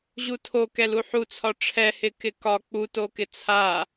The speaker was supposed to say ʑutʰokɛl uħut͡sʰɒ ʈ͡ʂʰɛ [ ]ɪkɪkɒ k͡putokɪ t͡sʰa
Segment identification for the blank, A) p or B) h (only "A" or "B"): B